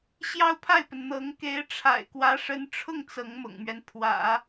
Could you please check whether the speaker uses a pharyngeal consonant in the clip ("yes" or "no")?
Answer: no